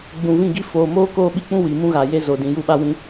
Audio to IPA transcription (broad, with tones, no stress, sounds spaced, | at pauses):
ɡ͡b ũ˨ v ĩ˦˨ ɡ i˦ f oː˨ m oː˦ k oː˦ ɓ i˦ k͡p ũ˦ w i˨ m ũ˦ ɣ a˨ j e˦ z o˨ d ĩ˨ j u˦˨ ɓ a˦ w ĩ˦